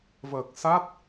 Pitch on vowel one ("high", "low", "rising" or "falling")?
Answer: low